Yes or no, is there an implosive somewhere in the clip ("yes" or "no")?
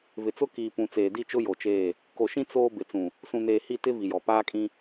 no